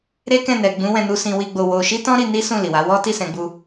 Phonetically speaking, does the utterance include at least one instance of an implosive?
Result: no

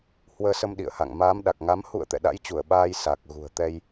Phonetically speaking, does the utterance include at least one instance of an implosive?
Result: yes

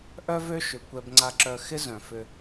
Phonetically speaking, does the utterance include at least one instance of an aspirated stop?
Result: no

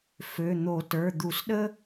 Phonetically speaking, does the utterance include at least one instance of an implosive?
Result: yes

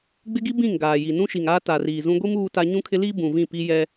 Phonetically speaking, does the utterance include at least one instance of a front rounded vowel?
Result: no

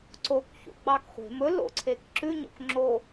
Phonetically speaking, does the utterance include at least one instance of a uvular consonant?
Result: yes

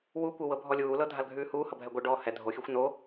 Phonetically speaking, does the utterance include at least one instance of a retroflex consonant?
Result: yes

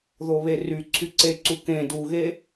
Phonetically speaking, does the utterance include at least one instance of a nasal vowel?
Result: yes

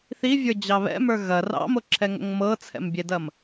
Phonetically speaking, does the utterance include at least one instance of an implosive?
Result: no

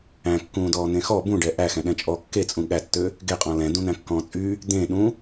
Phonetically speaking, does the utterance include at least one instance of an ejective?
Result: yes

